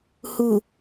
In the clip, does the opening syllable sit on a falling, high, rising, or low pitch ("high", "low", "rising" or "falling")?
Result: low